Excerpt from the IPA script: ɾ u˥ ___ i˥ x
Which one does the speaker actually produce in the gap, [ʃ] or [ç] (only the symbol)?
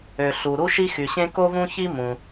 ʃ